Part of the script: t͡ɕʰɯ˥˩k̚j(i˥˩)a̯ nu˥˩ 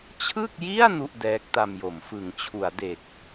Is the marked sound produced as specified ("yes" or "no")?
yes